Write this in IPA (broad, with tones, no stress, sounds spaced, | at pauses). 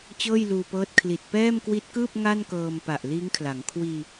t͡ɕ ɤː˥˩ j l uː˧ p ɤː˦˥ t̚ kʰ l i˨˩ t̚ p ɛː˥˩ m k w i˦˥ t̚ k ɯː˥˩ p̚ ŋ a˥˩ n k ɤː˧ m p a˨˩ ʔ l iː˦˥ ŋ kʰ l a˩˦ ŋ kʰ w iː˧